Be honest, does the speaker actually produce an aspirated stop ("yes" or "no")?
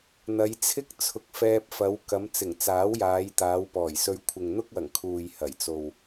yes